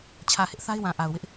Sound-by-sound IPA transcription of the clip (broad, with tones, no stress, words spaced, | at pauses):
t͡ɕʰä˨hɪ˦ʔθa˦ɪ̯wã˨ ʔa˨ʊ̯wɪ˦ʔ